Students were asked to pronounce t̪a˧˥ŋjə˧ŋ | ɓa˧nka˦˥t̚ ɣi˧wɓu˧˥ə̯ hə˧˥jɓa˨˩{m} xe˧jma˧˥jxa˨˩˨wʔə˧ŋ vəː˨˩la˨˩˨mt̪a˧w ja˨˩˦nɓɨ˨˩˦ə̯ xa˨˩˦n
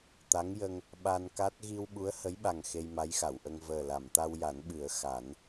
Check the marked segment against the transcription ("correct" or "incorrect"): incorrect